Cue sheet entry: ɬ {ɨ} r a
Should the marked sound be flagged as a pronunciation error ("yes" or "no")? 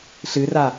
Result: no